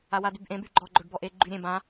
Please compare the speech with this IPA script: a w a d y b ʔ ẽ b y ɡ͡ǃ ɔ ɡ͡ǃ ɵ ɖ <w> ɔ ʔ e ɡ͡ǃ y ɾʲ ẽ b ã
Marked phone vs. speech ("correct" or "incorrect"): incorrect